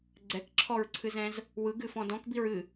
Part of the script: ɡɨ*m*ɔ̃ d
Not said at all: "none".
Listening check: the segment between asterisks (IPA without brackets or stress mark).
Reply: f